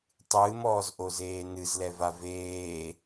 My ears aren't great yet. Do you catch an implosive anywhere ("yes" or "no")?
no